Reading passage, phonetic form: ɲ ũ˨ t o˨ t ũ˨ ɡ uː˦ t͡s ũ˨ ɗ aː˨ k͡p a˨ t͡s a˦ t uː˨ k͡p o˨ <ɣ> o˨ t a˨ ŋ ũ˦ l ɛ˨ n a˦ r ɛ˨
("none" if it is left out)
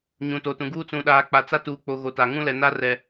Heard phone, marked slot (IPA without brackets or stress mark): ɣ